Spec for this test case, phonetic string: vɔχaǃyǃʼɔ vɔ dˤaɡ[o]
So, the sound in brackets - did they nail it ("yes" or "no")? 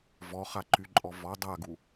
no